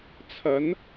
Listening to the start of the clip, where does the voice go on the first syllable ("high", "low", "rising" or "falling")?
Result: rising